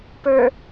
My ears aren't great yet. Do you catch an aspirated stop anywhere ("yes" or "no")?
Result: no